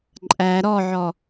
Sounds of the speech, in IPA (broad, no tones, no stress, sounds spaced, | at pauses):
ǃʼ æ ɾ ɔ ʕ ɔ